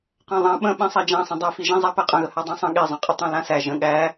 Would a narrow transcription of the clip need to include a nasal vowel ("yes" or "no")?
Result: yes